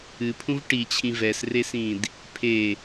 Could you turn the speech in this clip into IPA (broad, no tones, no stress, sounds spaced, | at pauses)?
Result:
ɨ pʰ ũ v ʈ i t͡ɕʰ ĩ v ɛ s r e s ĩ d | pʰ e